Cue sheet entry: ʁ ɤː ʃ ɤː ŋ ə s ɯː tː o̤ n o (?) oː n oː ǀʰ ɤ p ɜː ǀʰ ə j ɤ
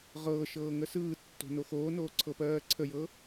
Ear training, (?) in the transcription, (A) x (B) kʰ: A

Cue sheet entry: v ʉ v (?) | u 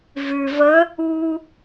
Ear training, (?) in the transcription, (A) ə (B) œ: A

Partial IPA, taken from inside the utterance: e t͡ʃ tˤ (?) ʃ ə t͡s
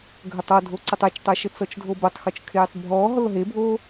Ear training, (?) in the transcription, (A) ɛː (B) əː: B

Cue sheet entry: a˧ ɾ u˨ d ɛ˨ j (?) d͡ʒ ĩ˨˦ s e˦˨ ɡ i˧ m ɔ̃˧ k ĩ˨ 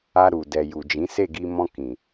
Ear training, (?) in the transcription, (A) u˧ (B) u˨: B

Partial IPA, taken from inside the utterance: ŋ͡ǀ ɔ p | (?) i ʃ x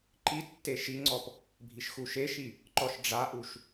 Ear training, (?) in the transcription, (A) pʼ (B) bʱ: B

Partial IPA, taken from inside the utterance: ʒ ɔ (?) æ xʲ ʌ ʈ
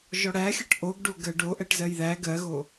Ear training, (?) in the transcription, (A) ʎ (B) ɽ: B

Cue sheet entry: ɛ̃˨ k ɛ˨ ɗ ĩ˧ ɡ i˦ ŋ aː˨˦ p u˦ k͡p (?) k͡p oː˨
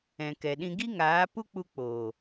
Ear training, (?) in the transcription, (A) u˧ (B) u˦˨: A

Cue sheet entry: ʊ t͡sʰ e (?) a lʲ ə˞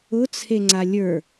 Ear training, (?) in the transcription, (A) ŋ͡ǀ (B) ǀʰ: A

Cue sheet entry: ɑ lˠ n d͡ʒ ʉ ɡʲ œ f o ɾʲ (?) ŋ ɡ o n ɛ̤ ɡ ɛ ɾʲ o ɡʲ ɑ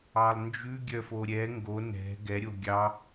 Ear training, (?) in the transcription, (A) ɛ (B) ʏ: A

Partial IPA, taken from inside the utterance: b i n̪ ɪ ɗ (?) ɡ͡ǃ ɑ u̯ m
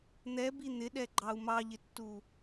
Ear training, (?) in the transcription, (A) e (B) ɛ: B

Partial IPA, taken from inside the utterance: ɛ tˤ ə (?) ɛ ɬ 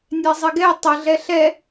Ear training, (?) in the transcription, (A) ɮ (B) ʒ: A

